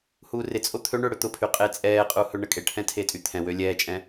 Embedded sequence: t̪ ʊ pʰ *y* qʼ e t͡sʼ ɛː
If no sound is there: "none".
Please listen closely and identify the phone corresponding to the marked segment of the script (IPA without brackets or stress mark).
y